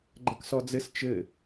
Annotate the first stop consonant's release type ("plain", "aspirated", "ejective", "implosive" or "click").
click